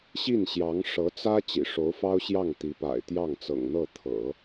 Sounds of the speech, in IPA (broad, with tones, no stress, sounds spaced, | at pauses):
ɕ i˥˩ n ɕ j ɑ˧˥ ŋ ʂ ɤ˧˥ t͡s ä˥ t͡ɕ ḭ˨˩ ʂ o˧˥ ʊ̯ f ɑ˥ ʊ̯ ɕ j ɑ˥˩ ŋ t̪ i˧˥ p a̰˨˩ ɪ̯ t̪ j ɑ˥˩ ŋ t͡s ɤ̰˨˩ ŋ n̪ ɤ˥˩ t̪ʰ ɤ̰˨˩˦